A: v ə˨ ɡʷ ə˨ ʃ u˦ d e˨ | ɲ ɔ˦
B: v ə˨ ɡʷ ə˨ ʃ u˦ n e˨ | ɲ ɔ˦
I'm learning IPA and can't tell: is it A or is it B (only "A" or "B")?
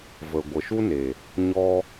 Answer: B